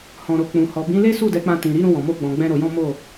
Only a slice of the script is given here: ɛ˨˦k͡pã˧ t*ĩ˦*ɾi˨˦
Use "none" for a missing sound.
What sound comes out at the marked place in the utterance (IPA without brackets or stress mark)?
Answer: ĩ˨